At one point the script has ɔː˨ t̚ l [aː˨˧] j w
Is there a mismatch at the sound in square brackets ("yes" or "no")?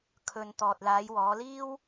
no